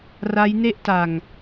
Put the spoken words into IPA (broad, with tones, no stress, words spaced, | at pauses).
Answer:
ra˦˥jne˥˩ʔta˨˩ŋ